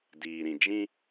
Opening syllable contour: low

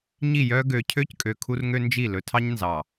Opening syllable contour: falling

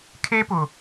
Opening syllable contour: high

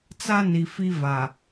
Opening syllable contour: high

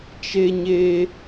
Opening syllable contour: high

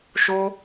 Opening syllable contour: high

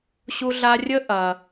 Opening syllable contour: high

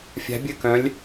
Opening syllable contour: rising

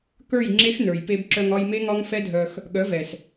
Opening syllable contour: falling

